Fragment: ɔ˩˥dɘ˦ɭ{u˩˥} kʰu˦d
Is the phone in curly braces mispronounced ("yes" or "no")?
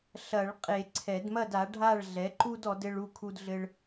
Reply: yes